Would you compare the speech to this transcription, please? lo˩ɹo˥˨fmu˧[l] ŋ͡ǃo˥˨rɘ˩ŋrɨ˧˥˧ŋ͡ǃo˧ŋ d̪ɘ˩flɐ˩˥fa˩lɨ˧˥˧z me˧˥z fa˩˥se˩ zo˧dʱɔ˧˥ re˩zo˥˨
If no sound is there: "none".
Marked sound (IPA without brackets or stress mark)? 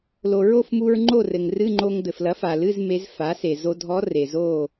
ɹ